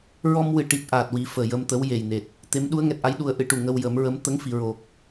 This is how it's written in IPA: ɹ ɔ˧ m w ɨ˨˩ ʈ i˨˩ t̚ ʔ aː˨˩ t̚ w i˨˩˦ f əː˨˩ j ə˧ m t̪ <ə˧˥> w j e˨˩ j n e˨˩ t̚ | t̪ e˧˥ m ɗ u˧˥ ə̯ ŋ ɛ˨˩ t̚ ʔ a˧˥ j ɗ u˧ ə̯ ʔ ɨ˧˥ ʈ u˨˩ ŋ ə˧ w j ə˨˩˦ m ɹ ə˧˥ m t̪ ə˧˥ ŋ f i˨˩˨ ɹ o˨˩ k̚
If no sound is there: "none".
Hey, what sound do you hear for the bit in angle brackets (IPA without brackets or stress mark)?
ə˧˥